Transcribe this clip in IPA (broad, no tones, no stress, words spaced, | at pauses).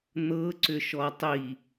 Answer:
n̪ɤ ǀʏʃɔtˤi